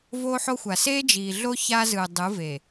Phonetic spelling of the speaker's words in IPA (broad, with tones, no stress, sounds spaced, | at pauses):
v oː˦ ħ o˦ xʷ a˨ s eː˦ d͡ʒ iː˨ ɮ o˦ ç a˦ z ɯ˨ dˤ ɯ˨˦ v e˨